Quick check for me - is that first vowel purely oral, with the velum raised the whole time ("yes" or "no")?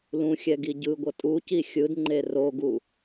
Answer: no